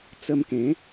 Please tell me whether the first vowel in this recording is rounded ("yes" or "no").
no